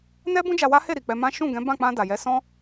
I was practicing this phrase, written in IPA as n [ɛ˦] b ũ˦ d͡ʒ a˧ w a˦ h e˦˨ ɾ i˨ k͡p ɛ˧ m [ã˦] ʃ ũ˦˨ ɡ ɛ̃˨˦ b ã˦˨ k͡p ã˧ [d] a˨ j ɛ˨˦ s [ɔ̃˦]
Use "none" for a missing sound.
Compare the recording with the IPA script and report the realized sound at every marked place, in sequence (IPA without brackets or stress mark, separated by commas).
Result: ɛ˦, ã˦, d, ɔ̃˦